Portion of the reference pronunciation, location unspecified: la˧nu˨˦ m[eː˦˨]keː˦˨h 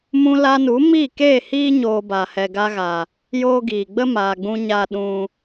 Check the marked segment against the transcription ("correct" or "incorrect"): incorrect